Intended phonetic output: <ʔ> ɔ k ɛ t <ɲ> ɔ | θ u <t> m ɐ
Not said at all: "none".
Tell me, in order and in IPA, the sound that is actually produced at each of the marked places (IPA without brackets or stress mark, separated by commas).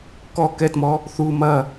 k, m, none